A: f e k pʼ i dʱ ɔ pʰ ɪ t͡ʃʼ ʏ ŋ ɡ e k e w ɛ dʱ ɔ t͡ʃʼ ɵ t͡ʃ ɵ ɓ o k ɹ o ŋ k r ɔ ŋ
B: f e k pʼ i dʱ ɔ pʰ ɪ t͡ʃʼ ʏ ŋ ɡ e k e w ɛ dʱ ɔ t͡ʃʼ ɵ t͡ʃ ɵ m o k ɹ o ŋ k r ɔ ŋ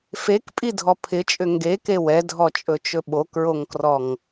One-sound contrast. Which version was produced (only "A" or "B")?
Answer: A